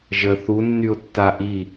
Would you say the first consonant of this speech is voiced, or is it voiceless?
voiced